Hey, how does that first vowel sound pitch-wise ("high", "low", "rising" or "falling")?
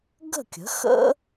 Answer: falling